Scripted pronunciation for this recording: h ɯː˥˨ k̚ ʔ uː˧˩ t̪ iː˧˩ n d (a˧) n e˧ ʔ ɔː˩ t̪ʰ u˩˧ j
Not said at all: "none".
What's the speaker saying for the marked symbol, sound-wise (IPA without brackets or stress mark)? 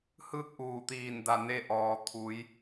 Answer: a˧˩